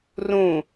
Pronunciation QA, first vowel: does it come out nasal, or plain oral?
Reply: nasal